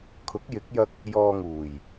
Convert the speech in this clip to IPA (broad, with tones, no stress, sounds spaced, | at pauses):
kʰ ʊ˨˥ k̚ j ɪ˨˥ k̚ j ɐ˧ k̚ | j ɔː˧ ŋ uː˨˩ j